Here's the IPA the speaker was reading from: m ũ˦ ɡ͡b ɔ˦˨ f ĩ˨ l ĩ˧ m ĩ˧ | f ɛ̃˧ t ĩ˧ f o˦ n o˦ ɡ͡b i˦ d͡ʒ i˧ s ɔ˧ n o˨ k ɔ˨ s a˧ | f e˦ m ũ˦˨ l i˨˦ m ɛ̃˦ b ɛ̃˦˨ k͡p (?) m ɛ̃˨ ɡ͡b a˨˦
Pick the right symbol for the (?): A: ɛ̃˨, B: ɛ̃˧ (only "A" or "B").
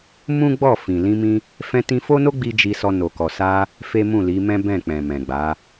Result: A